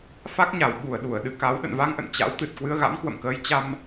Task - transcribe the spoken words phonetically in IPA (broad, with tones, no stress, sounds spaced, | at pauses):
f a˦˥ k̚ ɲ a˧˩ w ɓ u˧˩ ə̯ ɗ u˧˩ ə̯ ɗ ɨ˧ k a˨˦ w ɗ ə̰˧˨ n v a˧ ŋ ʔ ə̰˧˨ n t͡ɕ a̰˧˥ w t̪ ɨ˨˩ t̚ k w ɨ˧ ə̯ ɣ a̰˧˥ m k w ə̰˧˨ m k əː˨˦ j t͡ɕ a˧ m